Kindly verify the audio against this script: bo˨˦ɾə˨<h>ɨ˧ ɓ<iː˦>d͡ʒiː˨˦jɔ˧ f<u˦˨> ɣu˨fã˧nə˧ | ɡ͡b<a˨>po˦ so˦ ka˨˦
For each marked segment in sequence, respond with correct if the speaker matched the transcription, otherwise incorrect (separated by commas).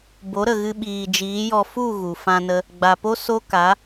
incorrect, incorrect, correct, correct